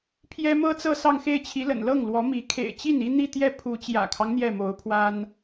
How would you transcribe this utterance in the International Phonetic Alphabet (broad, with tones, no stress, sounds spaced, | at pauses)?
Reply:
pʰ j ɛ˥ m ɤ˥ t͡s ɤ˥˧ s ɑ˥˧ ŋ x e˥˩ ɪ̯ t͡ɕʰ i˧˥ l ə̰˨˩ n l ɤ˥˩ ŋ l w ɔ˧˥ m i˧˥ kʰ ḛ˨˩ ɪ̯ t͡ɕ i˥˩ n i˥ n̪ i˥˧ t̪ j ɛ˥˩ pʰ u˧˥ t͡ɕ j ä̰˨˩ kʰ ɑ˦ ŋ n̪ j ɛ˥˩ m o˧˥ ʊ̯ pʰ w a˥ n